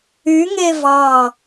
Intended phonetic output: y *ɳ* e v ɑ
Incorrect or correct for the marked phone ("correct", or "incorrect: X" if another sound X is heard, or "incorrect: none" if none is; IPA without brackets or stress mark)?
incorrect: ŋ